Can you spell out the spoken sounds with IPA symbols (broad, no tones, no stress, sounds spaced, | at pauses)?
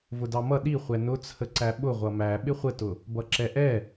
v ʊ d ɑ m ʌ ɗ i χʷ ɛ n ʊ t͡sʰ ə ǀ æ ɓ ʊ ʁʷ ʌ m æ ɓ ɪ χʷ ə t ʊ | b ʌ ǁ ɛ ʔ ɛ